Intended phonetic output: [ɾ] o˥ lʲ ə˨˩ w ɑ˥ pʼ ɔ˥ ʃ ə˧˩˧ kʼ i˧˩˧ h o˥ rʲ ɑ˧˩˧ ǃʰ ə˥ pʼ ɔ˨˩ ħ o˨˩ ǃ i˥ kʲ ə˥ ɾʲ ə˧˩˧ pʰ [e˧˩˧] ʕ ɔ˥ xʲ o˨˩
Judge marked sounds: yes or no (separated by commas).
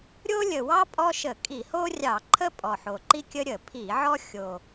no, no